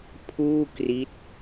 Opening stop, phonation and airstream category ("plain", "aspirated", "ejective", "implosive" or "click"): aspirated